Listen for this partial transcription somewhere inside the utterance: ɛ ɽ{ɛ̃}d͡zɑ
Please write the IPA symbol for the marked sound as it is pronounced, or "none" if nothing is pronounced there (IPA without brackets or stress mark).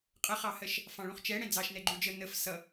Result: ɛ̃